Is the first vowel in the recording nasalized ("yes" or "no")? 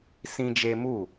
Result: yes